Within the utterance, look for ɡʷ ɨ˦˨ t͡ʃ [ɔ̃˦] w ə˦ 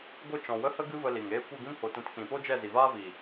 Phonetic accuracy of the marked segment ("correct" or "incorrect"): incorrect